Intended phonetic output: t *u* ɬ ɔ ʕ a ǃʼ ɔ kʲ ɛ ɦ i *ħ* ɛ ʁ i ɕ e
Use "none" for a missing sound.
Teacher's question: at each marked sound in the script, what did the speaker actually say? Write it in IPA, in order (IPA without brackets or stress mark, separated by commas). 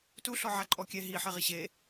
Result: u, ħ